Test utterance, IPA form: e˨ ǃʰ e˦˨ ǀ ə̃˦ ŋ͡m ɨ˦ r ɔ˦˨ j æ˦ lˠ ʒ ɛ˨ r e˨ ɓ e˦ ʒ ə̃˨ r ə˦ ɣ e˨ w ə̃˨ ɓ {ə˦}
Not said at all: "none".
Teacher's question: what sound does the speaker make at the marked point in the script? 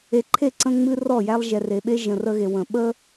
ə˦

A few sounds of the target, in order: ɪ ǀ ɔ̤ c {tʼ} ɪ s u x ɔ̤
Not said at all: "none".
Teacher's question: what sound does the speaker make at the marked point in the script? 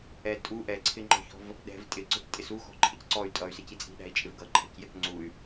tʼ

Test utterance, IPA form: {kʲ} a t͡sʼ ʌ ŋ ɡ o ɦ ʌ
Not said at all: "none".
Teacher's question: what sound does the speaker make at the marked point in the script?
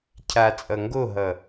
cʰ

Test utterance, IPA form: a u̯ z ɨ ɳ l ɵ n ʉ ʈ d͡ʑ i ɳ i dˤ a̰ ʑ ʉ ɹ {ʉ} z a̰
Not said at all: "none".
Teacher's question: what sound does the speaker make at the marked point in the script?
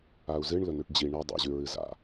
ɨ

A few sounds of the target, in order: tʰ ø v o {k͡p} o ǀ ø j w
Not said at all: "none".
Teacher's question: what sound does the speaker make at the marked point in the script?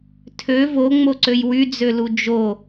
ŋ͡m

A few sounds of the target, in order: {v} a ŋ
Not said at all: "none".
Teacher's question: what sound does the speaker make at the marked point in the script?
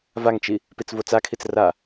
v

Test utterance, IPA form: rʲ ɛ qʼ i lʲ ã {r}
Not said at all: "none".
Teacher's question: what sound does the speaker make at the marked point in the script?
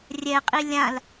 l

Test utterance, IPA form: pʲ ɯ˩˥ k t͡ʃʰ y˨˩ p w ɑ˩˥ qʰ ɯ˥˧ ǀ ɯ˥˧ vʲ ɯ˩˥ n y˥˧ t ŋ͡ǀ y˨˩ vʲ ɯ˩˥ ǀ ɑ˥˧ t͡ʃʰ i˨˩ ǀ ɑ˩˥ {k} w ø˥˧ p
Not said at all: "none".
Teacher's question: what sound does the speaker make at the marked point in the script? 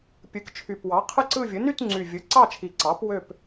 p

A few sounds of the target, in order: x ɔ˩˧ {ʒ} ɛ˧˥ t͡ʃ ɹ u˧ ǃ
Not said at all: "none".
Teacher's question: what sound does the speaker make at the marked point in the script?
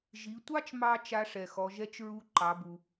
ʒ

